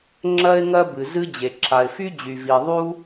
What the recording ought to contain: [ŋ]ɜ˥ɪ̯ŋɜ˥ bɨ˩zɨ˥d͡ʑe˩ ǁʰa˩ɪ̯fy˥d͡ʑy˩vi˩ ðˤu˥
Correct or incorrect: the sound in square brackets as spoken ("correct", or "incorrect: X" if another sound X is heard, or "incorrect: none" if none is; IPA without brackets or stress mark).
incorrect: ŋ͡ǁ